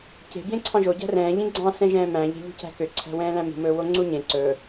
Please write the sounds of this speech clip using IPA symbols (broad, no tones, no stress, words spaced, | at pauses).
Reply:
ce̤ bjẽǀʰɑ̃ʒo ɟæ̤rɛ̃ː ʎĩɡ͡ǀɑ̃ sɛ̃ʒɛ̃ːmæ̃ ʎe̤ʎṳcæ̤kø ǀʰæ̤wɛ̃ːlæ̃mṳ mɵːwoŋ͡ǀuɲẽ ǀɵː